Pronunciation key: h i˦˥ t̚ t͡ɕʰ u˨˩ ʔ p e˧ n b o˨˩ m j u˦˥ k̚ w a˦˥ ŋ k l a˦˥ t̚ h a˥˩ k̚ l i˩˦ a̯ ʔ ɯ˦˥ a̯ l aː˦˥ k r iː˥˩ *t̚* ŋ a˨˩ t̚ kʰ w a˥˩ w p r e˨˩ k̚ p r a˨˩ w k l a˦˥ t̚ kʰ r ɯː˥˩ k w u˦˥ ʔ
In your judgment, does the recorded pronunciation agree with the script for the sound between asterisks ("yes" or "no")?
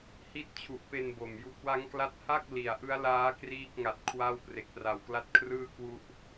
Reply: no